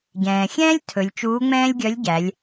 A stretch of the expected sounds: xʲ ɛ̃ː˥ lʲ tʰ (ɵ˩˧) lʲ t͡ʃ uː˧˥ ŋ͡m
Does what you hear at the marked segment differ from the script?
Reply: no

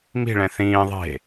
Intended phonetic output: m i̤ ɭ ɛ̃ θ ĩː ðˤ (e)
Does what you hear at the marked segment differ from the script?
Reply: yes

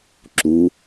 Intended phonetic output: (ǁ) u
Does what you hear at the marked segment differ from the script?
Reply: no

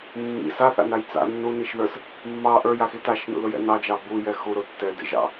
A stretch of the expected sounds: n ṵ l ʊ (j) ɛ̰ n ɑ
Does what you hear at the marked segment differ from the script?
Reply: no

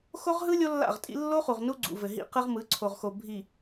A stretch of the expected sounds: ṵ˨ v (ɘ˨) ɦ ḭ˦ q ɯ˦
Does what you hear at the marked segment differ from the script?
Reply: no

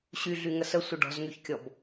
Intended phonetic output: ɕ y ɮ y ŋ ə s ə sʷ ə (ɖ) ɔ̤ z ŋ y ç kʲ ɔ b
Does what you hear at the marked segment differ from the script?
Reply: no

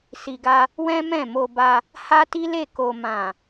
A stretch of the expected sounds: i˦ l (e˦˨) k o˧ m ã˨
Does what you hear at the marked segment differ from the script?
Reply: no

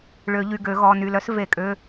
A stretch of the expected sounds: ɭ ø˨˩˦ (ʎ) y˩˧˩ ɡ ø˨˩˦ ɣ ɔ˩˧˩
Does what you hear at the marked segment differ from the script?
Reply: no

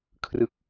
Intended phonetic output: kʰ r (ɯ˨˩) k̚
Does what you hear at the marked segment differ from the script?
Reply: yes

